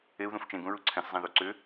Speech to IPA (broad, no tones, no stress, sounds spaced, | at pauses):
e u̯ ð ũ f t͡ʃ ẽ ɡ ũ ɹ u ǀʰ ɛ̃ s zˤ ɛ̃ ð u ǀ ʏ